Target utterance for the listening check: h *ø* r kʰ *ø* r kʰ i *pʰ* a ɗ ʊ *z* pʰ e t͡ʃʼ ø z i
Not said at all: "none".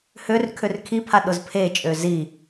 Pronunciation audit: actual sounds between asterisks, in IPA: ø, ø, pʰ, z

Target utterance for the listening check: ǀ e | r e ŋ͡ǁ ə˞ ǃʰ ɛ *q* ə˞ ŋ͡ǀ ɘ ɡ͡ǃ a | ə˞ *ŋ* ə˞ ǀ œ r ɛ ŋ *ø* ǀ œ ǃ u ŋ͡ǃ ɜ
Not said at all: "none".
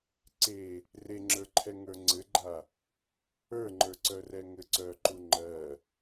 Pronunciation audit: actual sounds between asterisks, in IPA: ŋ, ŋ͡ǃ, ɘ

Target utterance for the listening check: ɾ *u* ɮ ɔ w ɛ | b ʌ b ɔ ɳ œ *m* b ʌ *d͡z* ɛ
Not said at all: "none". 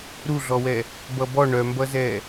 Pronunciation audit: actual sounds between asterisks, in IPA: u, m, z

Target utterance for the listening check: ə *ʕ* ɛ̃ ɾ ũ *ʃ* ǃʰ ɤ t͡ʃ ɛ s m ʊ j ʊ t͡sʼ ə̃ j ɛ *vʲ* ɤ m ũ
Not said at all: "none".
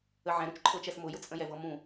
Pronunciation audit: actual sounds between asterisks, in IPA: ʕ, t͡ʃ, v

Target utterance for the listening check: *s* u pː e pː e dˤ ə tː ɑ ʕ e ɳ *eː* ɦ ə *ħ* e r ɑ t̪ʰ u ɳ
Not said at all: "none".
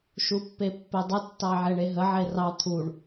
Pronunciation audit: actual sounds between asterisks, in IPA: ʃ, e, ʕ

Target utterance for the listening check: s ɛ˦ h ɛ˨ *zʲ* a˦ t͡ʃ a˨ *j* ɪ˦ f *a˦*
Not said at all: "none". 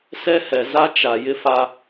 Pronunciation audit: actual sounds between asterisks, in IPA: z, j, a˦

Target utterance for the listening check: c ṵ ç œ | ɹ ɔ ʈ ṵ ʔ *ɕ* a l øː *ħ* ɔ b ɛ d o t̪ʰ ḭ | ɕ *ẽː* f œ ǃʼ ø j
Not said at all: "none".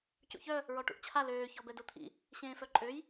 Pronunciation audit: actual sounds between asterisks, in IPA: t͡ɕʰ, ç, ẽː

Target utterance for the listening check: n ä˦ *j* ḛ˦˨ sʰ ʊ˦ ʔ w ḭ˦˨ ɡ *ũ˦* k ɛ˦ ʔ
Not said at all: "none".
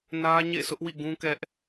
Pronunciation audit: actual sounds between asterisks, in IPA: ɲ, ũ˦

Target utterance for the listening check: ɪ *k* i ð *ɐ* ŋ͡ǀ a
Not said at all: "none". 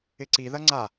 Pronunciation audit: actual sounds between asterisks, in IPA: ǀ, ɐ

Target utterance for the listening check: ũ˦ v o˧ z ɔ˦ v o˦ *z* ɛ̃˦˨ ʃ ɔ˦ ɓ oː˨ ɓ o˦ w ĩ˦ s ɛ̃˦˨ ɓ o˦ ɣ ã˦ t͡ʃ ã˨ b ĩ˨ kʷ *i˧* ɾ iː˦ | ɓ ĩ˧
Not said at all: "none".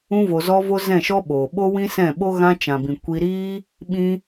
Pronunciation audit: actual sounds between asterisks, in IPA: z, i˧

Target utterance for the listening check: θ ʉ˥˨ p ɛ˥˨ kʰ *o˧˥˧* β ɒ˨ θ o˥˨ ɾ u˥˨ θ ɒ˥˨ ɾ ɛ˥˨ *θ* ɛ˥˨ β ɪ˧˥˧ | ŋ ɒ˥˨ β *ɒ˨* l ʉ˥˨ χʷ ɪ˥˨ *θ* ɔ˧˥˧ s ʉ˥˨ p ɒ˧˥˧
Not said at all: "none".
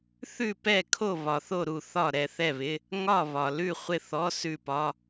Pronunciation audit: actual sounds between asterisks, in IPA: o˥˨, θ, ɒ˨, θ

